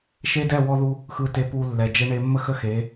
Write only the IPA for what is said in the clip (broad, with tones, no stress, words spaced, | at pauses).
ʃe˦ dɛ˦˨ wɔ˦ðu˦ | xɯ˨te˨pu˨ lːɛ˨d͡ʒɛ˦ɳe˦ mːə˦xə˦xe˨˦